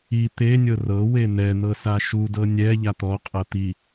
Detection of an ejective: present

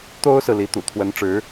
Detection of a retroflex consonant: present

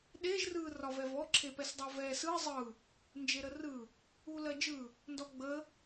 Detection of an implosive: present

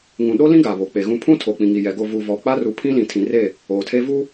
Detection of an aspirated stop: present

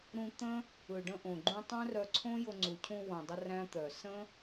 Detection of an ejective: absent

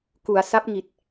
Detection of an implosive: absent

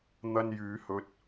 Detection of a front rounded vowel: present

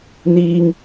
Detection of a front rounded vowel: absent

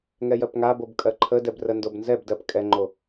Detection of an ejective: present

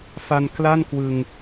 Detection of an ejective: absent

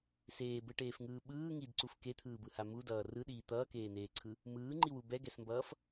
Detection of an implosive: present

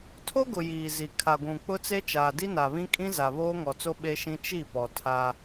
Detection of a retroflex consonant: absent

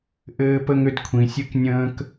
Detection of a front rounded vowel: present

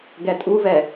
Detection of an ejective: present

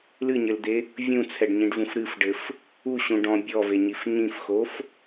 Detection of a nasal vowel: present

